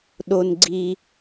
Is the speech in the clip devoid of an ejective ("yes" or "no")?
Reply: yes